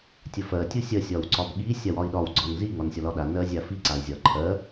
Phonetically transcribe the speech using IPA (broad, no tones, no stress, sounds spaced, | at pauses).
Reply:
tʲ ə f ɜ tʲ u sʲ ɜ sʲ ɒ w ǀ ɒ b ɠ i sʲ a w ɒ i̯ ɗ ɒ w ɡ͡ǀ ɒ n z i ŋ ɒ n sʲ ɒ l ɒ ɗ a n ɜ zʲ a f i ǀ a i̯ zʲ ɒ ǃʰ ɜ